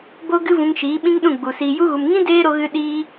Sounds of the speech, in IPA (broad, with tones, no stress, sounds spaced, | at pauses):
b o˦ ɡ ɨ˦ v ũ˧ ŋ ʃ iː˨˦ ɓ ĩ˦ ŋ ɗ ũ˦˨ ɡ͡b u˨ s iː˨ j u˧ ɣ u˨ m ŋ ĩ˦ d eː˦ ɾ o˧ ɣ ɨ˧ ɗ iː˧